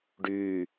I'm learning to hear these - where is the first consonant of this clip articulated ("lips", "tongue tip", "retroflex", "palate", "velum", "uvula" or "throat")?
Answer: retroflex